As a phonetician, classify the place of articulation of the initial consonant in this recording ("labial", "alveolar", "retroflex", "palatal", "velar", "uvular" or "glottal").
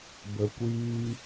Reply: labial